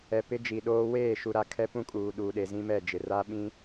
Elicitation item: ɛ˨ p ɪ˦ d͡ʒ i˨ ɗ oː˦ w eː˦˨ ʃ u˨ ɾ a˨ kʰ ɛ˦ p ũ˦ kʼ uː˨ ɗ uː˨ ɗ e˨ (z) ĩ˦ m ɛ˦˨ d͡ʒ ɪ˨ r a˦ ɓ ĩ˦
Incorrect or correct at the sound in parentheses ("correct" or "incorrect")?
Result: correct